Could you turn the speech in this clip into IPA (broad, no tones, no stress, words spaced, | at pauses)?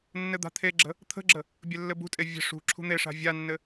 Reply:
nːɘd̪a̤t̪ʰeɡ͡ǁə̤ | t̪ʰə̤ɡ͡ǁə | bʲɘlːɘbṳtʼe vʲə̤ ʂṳ ǁʰṳn̪eʂa̤ vʲanːɘ